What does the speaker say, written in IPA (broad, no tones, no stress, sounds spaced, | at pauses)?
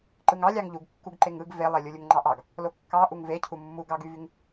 ǃ ɯ ŋ ɑ lʲ ɑ ŋ ʎ u ɡ kː u ɡ ǃ e ŋ ɯ ɡ v e lˠ e lʲ u lʲ u ŋ ŋ͡ǃ ɑ ʔ ɑ ɡ | l o kː ɑ ʔ u ŋ v e cʰ u mː u ɡ ɑ ɡ y v y ŋ